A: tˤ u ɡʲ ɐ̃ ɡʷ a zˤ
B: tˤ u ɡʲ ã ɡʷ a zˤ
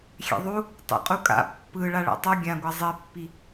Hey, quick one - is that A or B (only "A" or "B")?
B